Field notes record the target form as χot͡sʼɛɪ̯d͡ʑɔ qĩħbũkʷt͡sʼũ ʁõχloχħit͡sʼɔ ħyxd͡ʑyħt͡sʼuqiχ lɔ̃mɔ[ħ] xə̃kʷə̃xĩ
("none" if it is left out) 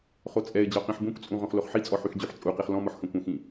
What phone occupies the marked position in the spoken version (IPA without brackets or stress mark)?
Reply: ħ